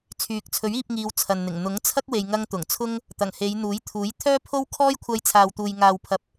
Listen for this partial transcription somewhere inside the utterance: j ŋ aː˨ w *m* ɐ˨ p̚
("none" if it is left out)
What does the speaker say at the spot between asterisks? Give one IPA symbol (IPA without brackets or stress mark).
pʰ